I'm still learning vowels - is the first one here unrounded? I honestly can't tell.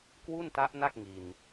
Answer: no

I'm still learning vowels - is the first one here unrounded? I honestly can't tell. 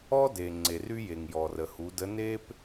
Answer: no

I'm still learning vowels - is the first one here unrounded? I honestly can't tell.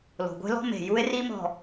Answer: no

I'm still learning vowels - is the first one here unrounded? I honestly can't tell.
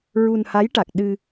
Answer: no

